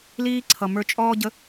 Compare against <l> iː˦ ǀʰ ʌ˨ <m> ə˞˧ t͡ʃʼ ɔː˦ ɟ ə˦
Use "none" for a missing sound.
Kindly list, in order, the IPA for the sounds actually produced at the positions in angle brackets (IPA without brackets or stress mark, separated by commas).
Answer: l, m